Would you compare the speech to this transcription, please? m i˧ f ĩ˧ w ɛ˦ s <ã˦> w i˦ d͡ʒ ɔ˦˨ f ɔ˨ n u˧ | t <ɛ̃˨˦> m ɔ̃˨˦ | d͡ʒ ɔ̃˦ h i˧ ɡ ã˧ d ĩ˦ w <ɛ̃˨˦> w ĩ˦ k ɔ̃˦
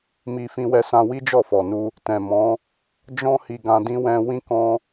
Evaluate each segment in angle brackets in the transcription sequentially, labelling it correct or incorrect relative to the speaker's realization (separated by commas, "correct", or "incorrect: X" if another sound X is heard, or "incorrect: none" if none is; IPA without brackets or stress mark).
correct, incorrect: ɛ̃˨, incorrect: ɛ̃˧